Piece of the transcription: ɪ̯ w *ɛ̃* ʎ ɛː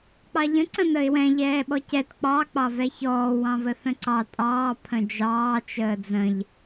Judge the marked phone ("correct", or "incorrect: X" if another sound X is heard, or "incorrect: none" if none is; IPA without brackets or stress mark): correct